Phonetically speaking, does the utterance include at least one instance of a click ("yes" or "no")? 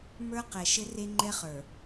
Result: yes